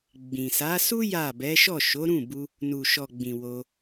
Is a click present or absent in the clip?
absent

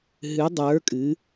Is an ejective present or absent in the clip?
present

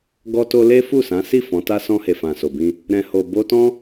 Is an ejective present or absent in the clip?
absent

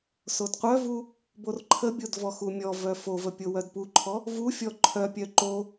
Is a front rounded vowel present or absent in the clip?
present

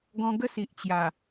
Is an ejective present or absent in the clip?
absent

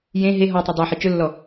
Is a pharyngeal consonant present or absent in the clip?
present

